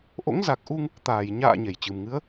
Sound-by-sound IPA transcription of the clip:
ʔ o̰˧˥ ŋ z a˨˩ k̚ ʔ u˧ ŋ | t̪ aː˧˩ j ɲ a̰ː˧˨ ɲ e˧˩ j t͡ɕ ɨ˨˩ m ŋ ɨ˨˦ ə̯

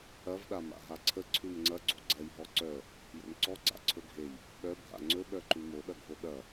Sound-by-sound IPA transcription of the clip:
ɐ v ɗ a m a̰ ɦ a ǀʰ ə ǀʰ ʉ m ŋ͡ǀ ɐ ɡ͡ǀ o̰ ɡ͡ǀ ɐ j ɦ ɔ ǀ œ | j o̰ n ǀ ɔ ɡ͡ǀ a̰ ǀʰ ɵ ɡʱ e j | ɓ œ bʱ a̰ ŋ͡ǀ ɵ ɓ œ ǃ ʉ m o ɗ ɐ ɡʱ o ɗ ɐ

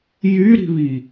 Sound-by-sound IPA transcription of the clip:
j y ɾ i̤ β i

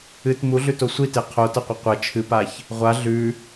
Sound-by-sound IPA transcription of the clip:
ɨ t m u ɮ ʉ t o sʷ i t e qʰ o t ɐ qʷ ɐ qʷ ɐ t͡ʃʰ ɨ p a ç | ʁʷ a ɮ ʉ

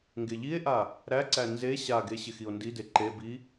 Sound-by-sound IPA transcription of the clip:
ŋ ɡ e ʎ i e̯ ʔ a | ɾ æ ǀ æ n z e ɕ a ɡ e ɕ ɪ x i o̯ n d i d e ǃ e b i

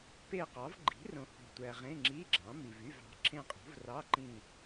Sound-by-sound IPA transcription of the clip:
p e˦˨ q ɑ˩˥ v ɡ͡ǃ i̤˩˥ r õ˨ h o̤˨ tʷ æ˨ ʁ ẽ˧˥˧ ŋ͡ǁ iː˧˥˧ ɡ͡ǁ ɑ̃˩˥ m i˨ v y˧˥˧ v ɑ̤˩˥ ǁʰ ẽ˦˨ qʼ o̤˩˥ v r ɑ˧˥˧ ǃ ĩ˦˨

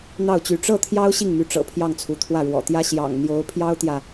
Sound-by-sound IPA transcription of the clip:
n̪ ɑ˥˩ ʊ̯ t͡ɕ y˧˥ ʈ͡ʂ ɤ˥˩ t̪ʰ j ɑ˥ ʊ̯ ɕ i˥˩ ŋ m y˧˥ ʈ͡ʂ ɤ̰˨˩ pʰ j ɑ˥˩ ŋ t͡sʰ u˧˥ t̪ʰ w ä˥˩ ɻ w ɔ̰˨˩ t̪ j ä˥ ɕ j ɑ̰˨˩ ŋ n̪ j o˧˥ ʊ̯ pʰ j ɑ˥ ʊ̯ t̪ j ä˨

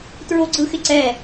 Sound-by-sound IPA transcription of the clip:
t ɹ o ɡ͡ǀ ɯ x ɪ ǀ ɛ

